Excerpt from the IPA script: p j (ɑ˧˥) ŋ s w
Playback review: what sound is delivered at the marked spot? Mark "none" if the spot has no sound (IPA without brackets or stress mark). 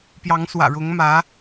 ɑ˧˥